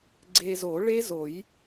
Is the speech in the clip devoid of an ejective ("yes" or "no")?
yes